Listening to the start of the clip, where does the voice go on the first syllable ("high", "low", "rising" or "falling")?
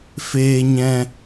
high